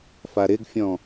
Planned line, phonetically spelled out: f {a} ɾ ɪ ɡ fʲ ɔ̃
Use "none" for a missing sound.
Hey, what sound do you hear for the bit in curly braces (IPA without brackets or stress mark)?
a